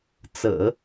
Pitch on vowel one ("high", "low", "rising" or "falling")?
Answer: low